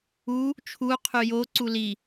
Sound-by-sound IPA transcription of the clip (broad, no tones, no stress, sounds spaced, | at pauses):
u | t͡ʃʰ u qʰ y j o ǀ u l i